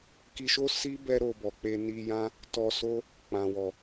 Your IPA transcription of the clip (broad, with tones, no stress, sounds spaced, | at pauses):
k i˧ ʃ o˦ s i˦ b ɛ˦ ɾ o˧ b ɔ˨ k͡p e˧ n i˧ j ã˦ | t ɔ˧ s o˦ | k͡p ã˨ w ɔ˨